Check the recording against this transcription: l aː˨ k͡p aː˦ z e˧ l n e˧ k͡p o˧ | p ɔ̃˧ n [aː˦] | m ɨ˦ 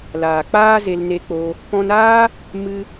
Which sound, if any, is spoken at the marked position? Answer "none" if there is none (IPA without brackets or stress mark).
aː˦